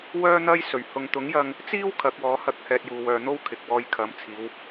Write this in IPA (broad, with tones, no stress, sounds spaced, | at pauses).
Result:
w œː˥ n̪ ɐ˥ j s ɵ˨˩ ɥ h ʊ˨ ŋ t̪ ʊ˨˥ ŋ j ɐ˧ ŋ | t͡s iː˥ w kʰ ɐ˨˥ k̚ w ɔː˨˥ h ɐ˧ k̚ h ɛː˧ t̚ j uː˨ w œː˨ n̪ o˥ w kʰ ɪ˨ k̚ w ɔː˧ j kʰ ɐ˨˥ m t͡sʰ iː˨˧ w